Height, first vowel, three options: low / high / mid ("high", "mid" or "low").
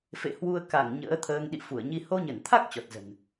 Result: mid